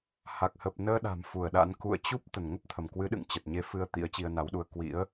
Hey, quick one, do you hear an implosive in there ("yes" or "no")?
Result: yes